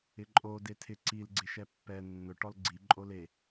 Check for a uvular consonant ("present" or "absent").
absent